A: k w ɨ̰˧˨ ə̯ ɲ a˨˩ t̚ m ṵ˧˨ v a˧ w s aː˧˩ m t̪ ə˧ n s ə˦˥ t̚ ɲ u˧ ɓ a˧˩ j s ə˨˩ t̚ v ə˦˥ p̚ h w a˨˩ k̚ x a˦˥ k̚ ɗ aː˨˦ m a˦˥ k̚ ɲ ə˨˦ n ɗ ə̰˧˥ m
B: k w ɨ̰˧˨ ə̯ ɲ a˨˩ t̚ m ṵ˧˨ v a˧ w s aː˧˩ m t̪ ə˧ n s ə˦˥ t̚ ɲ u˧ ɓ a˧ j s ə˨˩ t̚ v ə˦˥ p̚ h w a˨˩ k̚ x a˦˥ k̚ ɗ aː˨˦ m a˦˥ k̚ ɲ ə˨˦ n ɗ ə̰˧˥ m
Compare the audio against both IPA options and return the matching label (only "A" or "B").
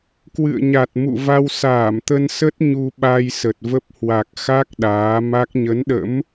B